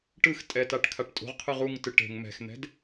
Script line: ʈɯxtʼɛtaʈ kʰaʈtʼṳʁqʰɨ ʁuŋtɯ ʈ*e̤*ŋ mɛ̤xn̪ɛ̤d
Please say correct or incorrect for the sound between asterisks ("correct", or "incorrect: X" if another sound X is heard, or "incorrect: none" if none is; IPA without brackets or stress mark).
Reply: correct